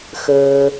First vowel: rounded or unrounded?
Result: unrounded